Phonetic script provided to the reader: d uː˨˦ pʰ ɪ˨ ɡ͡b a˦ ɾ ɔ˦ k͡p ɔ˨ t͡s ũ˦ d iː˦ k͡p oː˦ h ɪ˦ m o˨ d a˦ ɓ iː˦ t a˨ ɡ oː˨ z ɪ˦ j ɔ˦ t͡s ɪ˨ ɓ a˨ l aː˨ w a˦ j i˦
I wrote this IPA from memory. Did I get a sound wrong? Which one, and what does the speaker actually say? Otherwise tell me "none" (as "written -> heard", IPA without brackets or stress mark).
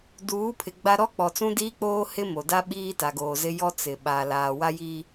none